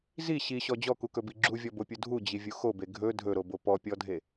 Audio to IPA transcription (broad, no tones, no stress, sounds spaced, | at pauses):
z i ɕ i ɕ ɔ d͡ʑ ɔ k u k ɵ b i ɡ͡ǁ u vʲ ɔ b o pʲ u dʱ u d͡ʑ i vʲ u x o b e ɡʱ ɵ dʱ ɵ ɾ o b o p ɔ pʲ ɔ dʱ e